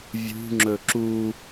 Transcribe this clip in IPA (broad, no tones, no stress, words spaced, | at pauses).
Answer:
vʲṳŋ͡ǁɵ ǁu